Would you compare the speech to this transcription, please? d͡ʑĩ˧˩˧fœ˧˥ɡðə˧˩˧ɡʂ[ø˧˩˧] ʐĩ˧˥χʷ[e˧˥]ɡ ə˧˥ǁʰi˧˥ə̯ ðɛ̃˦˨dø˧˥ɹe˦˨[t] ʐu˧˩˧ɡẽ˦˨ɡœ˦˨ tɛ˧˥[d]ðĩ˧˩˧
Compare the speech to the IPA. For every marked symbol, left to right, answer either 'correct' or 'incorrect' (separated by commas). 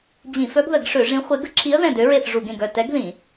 correct, correct, incorrect, incorrect